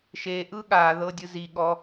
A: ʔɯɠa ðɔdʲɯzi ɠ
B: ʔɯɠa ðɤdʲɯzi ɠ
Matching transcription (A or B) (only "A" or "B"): B